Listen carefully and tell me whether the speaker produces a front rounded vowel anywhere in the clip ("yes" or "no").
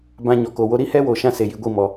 no